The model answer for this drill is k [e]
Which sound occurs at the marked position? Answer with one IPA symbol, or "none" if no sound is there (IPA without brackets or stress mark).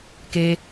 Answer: e